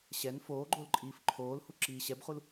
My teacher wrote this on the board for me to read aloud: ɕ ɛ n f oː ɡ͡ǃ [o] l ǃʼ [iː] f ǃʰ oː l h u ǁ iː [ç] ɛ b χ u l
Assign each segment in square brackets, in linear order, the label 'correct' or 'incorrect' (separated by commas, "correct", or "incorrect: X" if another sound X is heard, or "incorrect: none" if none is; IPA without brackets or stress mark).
correct, correct, incorrect: ɕ